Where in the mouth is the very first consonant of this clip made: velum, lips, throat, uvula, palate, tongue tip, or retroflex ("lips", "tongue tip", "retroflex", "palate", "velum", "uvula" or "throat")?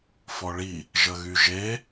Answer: lips